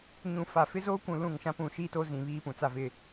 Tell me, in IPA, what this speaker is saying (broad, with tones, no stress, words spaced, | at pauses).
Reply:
ɲũ˨fa˨ fɪ˦zoː˦kʷũ˨ lũ˦˨ŋʃã˦ pũ˨ʃiː˦to˦ zĩ˨ βiː˦pũ˨t͡sa˦vɪ˦˨